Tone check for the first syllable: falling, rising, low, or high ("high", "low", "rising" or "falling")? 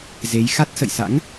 rising